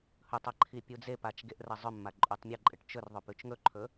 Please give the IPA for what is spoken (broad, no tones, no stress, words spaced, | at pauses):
hɵtˤa ǃʰipʲud͡zepat͡ʃ ɡeʔrɐzˤɵmːa ǃʼutˤmʲɐǃʼɨʈ t͡ʃɵrðˤɵ pʉt͡ʃŋɵǃʰɵ